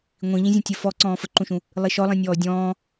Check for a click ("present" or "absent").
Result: present